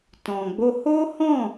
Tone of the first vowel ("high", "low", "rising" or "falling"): low